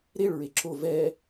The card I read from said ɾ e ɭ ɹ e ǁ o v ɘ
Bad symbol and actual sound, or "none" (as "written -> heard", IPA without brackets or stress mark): ɘ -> ɛ